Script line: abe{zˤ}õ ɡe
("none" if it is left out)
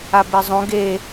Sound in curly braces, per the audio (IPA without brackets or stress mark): zˤ